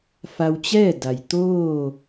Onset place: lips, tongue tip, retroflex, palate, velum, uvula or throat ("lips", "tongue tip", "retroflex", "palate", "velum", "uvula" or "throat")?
lips